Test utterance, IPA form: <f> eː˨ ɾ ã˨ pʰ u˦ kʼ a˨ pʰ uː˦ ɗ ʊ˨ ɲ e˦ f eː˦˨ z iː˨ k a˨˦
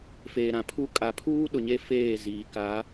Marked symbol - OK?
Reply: yes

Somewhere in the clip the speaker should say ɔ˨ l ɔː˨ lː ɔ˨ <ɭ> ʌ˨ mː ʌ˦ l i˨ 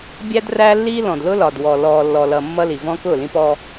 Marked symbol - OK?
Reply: no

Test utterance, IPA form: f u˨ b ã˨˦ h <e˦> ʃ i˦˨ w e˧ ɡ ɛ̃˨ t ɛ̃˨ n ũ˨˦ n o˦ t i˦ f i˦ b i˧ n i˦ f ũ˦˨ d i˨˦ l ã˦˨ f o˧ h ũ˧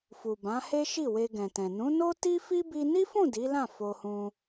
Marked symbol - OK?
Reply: yes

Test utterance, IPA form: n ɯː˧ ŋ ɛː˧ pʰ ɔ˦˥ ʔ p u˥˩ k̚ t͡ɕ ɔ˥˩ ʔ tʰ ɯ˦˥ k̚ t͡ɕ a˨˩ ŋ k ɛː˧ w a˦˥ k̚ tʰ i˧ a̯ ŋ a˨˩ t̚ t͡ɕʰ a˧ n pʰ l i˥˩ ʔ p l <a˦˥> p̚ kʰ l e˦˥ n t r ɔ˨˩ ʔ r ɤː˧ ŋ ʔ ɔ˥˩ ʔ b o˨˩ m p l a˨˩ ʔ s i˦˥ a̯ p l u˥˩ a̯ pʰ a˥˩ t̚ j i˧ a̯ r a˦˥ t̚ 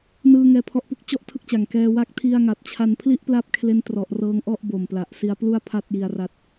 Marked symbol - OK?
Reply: yes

